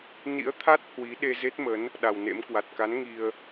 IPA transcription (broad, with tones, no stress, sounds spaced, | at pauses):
n ḭ˧˥ ə̯ t̪ʰ a˦˥ t̚ h w i˨˦ ɗ e˧ z e˦˥ t̚ m ə˨˦ n | ɗ a˨˩ w n ḛ˧˥ m k w a˨˩ t̚ k a˨˦ n ŋ i˧ ə̯